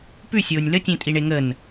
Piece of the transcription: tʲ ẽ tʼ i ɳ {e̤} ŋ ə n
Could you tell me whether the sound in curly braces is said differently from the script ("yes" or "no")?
yes